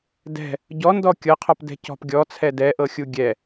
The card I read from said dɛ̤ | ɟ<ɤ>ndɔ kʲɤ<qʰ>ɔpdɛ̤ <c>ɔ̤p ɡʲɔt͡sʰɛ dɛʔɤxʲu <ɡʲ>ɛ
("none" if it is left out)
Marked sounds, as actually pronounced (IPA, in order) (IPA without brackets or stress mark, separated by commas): ɔ, qʰ, c, ɡʲ